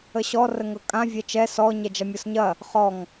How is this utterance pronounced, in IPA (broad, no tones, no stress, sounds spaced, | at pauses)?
ə ɕ ɔ r ə ŋ ɤ kʼ ã vʲ ɛ t͡ʃ ɛ s ɔ ɲ ɛ d͡ʒ ɐ mʲ ɔ s ɲ ɐ | χ ɔ ŋ